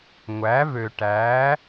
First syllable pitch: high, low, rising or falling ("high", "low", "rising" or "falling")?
rising